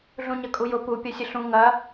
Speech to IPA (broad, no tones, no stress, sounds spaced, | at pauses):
ɮ ũ ɲ ɐ kʼ u j ʊ p u pʲ ɐ sʲ ə ɬ ũ ŋ ɐ